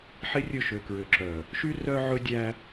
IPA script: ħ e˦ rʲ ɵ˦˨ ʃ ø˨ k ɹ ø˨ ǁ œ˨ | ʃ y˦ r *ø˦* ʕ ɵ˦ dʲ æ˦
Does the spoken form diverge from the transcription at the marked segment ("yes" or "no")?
yes